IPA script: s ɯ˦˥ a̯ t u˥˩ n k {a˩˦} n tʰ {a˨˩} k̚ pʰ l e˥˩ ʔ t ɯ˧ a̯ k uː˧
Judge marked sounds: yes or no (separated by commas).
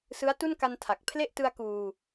no, yes